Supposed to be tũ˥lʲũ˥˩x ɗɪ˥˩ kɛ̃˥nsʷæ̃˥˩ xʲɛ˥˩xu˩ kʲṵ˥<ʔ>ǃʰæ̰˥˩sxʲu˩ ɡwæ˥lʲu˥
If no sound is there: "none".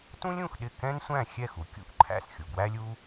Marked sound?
ʔ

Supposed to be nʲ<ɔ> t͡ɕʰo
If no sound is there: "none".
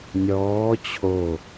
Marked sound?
ɔː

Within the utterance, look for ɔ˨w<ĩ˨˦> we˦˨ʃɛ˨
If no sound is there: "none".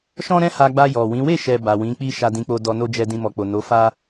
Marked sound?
ĩ˨˦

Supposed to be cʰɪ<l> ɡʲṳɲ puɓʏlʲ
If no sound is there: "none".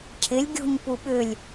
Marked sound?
lʲ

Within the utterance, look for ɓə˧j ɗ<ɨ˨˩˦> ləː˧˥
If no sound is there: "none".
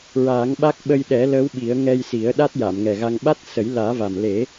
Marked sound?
ɛ˨˩˦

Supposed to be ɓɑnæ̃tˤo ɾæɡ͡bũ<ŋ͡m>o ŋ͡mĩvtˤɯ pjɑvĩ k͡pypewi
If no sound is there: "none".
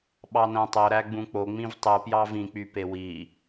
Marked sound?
k͡p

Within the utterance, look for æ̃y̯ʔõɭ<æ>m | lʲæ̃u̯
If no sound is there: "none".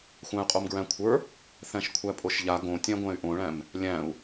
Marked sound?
æ̃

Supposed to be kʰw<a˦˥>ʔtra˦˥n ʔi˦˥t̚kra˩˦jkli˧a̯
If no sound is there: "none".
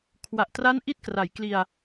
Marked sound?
a˨˩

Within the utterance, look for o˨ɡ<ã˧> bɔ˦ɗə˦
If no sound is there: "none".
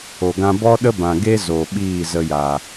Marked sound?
ã˧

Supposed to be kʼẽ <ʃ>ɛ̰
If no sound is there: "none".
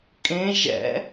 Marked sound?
ʒ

